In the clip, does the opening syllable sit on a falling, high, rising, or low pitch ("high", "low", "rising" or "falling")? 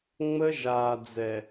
high